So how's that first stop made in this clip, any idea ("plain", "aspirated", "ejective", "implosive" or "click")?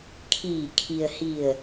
aspirated